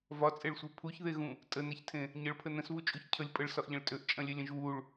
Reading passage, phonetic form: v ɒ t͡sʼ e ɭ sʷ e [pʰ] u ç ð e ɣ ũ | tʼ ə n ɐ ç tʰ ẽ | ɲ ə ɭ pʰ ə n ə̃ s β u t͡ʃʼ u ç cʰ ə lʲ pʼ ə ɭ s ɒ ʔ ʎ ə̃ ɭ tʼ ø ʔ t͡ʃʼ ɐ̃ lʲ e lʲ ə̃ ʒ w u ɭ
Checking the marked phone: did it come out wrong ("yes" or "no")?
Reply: no